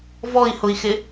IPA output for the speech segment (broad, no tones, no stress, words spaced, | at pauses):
vɔi̯hʊi̯xɪ